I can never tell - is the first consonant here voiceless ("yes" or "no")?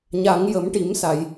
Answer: no